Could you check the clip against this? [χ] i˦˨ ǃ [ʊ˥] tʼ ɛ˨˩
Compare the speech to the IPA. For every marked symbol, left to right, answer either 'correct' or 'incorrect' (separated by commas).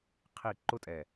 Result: incorrect, correct